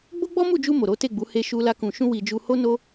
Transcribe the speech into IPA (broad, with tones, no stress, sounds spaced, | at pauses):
ɡ͡b o˦ ɡ͡b ɔ˦ m u˦˨ d͡ʒ u˧ m o˨ ɾ o˨˦ t e˦˨ ɡ͡b u˨˦ h e˧ ʃ u˧ l a˧ k ũ˨ ʃ ũ˧ w i˨ d͡ʒ u˧ h o˦ n o˦